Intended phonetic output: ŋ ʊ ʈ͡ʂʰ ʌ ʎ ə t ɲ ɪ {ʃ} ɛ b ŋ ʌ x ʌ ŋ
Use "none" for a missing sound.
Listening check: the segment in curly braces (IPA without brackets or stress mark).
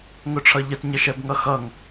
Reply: ʃ